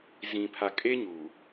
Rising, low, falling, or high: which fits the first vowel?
low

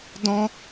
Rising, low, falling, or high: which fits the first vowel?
high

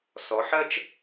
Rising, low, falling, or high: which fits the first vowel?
rising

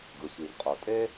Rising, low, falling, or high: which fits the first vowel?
low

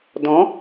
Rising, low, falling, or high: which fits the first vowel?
rising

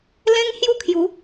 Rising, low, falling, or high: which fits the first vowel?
high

